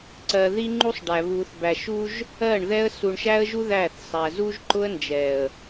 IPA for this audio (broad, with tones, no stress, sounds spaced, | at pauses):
ǀ ɜ˨ ð i˦ ŋ͡ǃ u˦ sˤ ɖ æ˨ β u˨ θ b æ˨ ʃ u˦ ʒ | ɜ˦˨ ɳ ð ɛ˦ ə̯ s u˨ ɳ ʃ æ˦ ə̯ ʒ u˦ ð æ˦˨ θ sˤ æ˨ z u˦ ʒ ǃ ʊ˦ ə̯ n d͡ʒ ɛ˨ ə̯